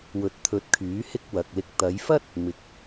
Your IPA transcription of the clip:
w ɵ˨˥ t̚ t̪ʰ ɵ˨˥ t̚ kʰ yː˨˥ h ɪ˥ k̚ w ɐ˨ k̚ l ɪ˧ k̚ t̪ ɐ˨˧ j f ɐ˥ t̚ | m ɪ˨˥ k̚

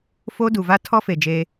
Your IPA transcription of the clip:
f o˦ d u˨ v a˦ tʰ ɔ˦ f e˨ d͡ʒ e˦

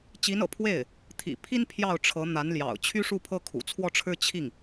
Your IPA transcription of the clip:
t͡ɕ i˧˥ n ɤ̰˨˩ pʰ w e˥˩ ɪ̯ | t̪ʰ ḭ˨˩ pʰ i˥ n pʰ j ɑ˥˩ ʊ̯ ʈ͡ʂʰ ɤ˧˥ n̪ a˧˥ n l j ɑ̰˨˩ ʊ̯ t͡ɕʰ y˥ ʂ u˥˩ pʰ ɤ˥ kʰ ṵ˨˩ t͡sʰ w ɔ˥˧ ʈ͡ʂʰ ɻ̩˥˧ t͡ɕʰ i˥˩ ŋ

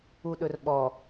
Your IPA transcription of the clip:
u ɗ ɵ r ɓ ɔ

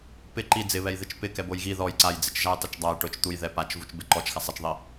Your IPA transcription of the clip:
p ɪ ǃ i d͡z ɪ β ɛ j ð ɪ t͡ʃ p ɪ k ɛ b o j ɣ i ð ɔ j ǀ a j d͡z ɪ t͡ʃ ʒ a j tˤ i t͡ʃ dˤ a j ʈ ʊ t͡ʃ t̪ u j ð ɛ p a t͡ʃ v u t͡ʃ b ɪ ǃ ɔ t͡ʃ x a sˤ ɛ t͡ʃ ðˤ i

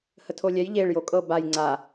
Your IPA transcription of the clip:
h ə tʰ o lʲ ɛ j ʎ e ɭ j o kʼ ɤ b a j ŋ͡ǀ a

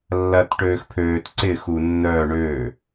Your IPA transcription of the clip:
lː ɐ t ʈ øː x pʰ øː t ǀ ɪ x u nː œː ɳ øː

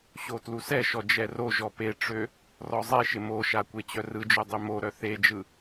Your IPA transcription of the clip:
ɕ o t l u s ɛ ʃ ɔ d͡ʒ ɛ r o ʒ ɔ p e ʈ͡ʂ ø | r ɔ zˤ e ʃ ɪ m o ʃ a kʷ e t͡ɕ œ r ɯ d͡ʒ ø dˤ ø m o ɾ œ θ e d͡ʒ ɯ

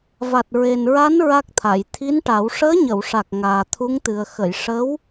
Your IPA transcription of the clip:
v a˨˩ t̚ ɹ e˨˩ n ɹ a˧˥ n ɹ a˦˥ k̚ t̪ʰ a˨˩˨ j t̪ʰ i˧˥ n ʈ a˨˩˦ w ʂ əː˧˥ ɲ ə˨˩˨ w ʂ a˨˩ k̚ ŋ aː˨˩ t̪ʰ u˧˥ ŋ t̪ ɨ˨˩ ə̯ x ə˨˩˨ j ʂ ə˧˥ w

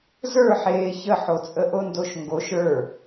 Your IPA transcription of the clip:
z ə˞ ħ eː ç ə ħ o t͡sʼ ə ʔ o n d o ʃ ŋ ɡ o ʃ ə˞

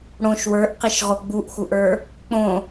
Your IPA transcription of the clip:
ɽ õ ʃ w ə˞ ʔ q i ʃ ʁ o ɡ͡b u ʔ x u ʔ ə˞ | k͡p õ

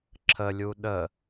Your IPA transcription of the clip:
ǁʰ ə lʲ u ɗ ə

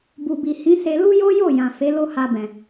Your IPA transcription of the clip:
b u˨ b i˨ h ĩ˨˦ s e˧ l u˦ j o˦ j o˦˨ j ã˨ f e˨˦ l o˦ h a˧ b ɛ̃˨

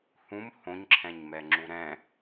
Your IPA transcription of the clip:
h ũ m h õ ɲ ǁʰ ɛ̃ ɲ m ɛ ŋ͡ǁ u ɾ ɛ̃

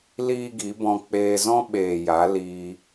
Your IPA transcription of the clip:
l iː˦ ɡ i˨˦ b ɔ̃˧ k͡p eː˧ z ɔ̃˦ ɓ eː˨ j a˨˦ l iː˧

